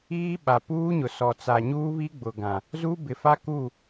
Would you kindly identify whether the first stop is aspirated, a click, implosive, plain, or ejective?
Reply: implosive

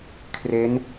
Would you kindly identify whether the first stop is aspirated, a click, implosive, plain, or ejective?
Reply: aspirated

